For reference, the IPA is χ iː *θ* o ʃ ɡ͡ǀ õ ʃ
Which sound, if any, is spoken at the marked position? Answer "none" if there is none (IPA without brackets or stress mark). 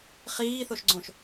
θ